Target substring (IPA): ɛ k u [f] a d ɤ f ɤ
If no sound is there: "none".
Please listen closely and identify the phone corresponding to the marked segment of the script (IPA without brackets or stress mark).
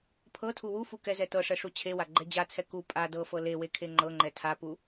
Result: pʼ